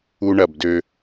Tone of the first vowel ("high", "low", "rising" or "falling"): high